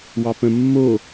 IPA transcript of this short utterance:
w ɑ p ə̃ mː o

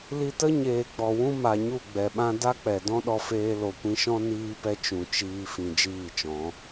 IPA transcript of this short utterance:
l i˧ t ə˦ ɲ eː˨ ɡ͡b ɔ˨ w ũ˦ m a˨ ɲ u˦˨ ɡ͡b ɛ˨ ɓ ã˦ d a˦ k͡p ɛ˨ d ɔ̃˦ ɗ ɔ˧ f eː˧ l o˨ kʷ ĩ˧ ʃ ɔ̃˦ n iː˦ p ɛ˦ t͡ʃ ũ˨ t͡ʃ iː˧ f ĩ˨ d͡ʒ iː˦˨ t͡ʃ ɔ̃˨˦

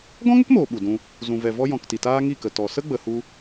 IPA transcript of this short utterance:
ɡ ɔ̃˦ ŋ ə˦ k m oː˨ ɓ u˨ d ũ˧ | z ũ˨ v ɛ˨ v ɔ˧ j ɔ̃˨ k t i˨ t aː˦ ŋ i˦˨ k ə˨ t ɔ˨ s ə˦ ɡ͡b ə˨ h u˧

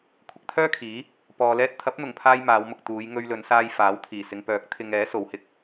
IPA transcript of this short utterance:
kʷʰ ɪ˧ k̚ t̪ʰ œː˥ kʰ iː˨˥ | p ɔː˨ l ɛː˧ t̚ t̪ʰ ɐ˨˥ p̚ n̪ ʊ˨˩ ŋ pʰ aː˧ j m aː˨˧ w m ʊ˨ k̚ t̪ uː˨˧ j ŋ ɵ˧ ɥ l ɵ˨˧ n s aː˧ j f aː˨˥ w t̪ʰ iː˨˩ s ɪ˨ ŋ p œː˨˥ k̚ t̪ʰ ɪ˧ ŋ ɛː˨˥ s o˨˧ w h ɪ˧ k̚

